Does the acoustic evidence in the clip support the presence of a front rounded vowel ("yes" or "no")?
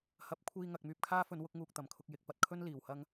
yes